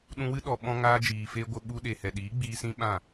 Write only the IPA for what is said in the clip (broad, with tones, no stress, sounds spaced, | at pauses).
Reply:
ɗ ũ˧ w ɨ˦ ɗ ɔ˨ ɓ ɔ̃˧ ŋ aː˧ d͡ʒ iː˨ f eː˧ ɡʷ ə˧ ɓ u˧ ɗ e˨ h ɛ˨ ɗ iː˨˦ ɡ͡b iː˧ s ĩ˦ ɓ ã˦˨